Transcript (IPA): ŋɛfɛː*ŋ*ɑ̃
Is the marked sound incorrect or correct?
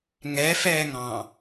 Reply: correct